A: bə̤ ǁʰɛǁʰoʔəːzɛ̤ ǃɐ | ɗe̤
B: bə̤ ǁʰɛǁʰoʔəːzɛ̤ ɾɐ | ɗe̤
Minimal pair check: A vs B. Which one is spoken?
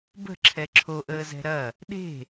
B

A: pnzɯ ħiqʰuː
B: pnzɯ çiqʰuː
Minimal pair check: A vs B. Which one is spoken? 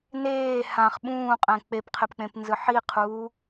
A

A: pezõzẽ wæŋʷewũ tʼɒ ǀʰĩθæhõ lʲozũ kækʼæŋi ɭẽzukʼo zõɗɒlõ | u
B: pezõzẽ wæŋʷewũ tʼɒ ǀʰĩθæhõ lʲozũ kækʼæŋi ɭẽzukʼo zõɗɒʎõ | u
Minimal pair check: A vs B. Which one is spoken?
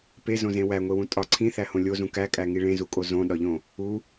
B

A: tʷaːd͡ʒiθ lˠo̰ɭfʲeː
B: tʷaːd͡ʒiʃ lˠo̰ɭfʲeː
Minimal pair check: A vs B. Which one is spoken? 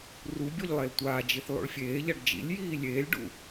A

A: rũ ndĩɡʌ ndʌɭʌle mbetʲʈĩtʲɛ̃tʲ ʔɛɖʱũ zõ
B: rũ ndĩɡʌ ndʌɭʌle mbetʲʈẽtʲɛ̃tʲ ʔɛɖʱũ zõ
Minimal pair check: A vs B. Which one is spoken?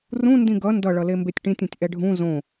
A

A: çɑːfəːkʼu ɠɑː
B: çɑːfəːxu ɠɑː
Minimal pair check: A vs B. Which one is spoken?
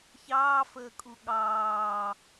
A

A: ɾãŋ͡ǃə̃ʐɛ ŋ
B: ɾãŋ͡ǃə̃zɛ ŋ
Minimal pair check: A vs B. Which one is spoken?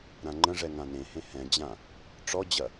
A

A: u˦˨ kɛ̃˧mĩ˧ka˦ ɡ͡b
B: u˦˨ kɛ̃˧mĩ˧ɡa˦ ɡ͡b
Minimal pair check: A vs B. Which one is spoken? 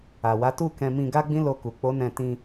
B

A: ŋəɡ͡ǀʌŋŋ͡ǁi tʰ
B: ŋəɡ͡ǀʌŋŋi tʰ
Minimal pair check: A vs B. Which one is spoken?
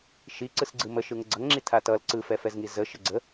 A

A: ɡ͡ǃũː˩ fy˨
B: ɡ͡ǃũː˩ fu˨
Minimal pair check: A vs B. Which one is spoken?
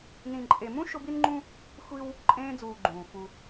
B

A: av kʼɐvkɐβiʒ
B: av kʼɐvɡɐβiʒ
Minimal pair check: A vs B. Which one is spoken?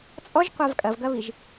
B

